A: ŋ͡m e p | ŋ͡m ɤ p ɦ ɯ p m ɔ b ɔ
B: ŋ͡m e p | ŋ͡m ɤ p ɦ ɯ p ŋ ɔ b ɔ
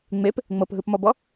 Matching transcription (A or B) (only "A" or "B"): A